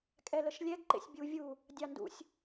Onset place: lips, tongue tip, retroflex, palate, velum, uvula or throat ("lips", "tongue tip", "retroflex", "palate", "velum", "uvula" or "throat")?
velum